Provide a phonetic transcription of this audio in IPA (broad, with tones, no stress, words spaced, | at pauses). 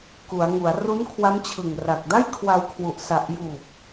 ku˩˦a̯ŋu˩˦a̯ ru˦˥nkʰwa˦˥mt͡ɕʰɯ˨˩ŋra˨˩k̚ da˥˩jkʰwa˧wkʰwu˨˩ʔ sa˨˩ʔjuː˨˩p̚